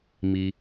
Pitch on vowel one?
low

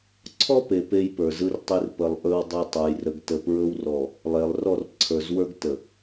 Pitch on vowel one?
high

